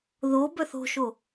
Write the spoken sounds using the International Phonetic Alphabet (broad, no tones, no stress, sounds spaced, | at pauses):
ð o b œ θ o̤ ʃ o